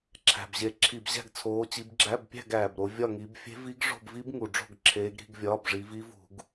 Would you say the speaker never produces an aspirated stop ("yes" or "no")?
no